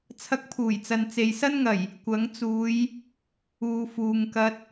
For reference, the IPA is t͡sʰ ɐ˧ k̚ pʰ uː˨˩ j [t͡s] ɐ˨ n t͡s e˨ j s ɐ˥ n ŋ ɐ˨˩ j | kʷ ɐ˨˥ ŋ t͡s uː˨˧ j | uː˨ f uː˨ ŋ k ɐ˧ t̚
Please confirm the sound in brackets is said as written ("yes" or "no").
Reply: yes